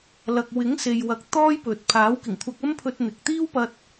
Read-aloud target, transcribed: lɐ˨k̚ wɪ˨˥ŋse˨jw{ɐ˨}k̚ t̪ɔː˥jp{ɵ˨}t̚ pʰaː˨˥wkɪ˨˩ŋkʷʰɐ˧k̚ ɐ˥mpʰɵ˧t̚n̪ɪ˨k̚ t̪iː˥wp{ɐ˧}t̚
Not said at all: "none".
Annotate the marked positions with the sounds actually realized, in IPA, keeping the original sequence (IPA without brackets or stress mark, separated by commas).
ɐ˨, ɵ˨, ɐ˧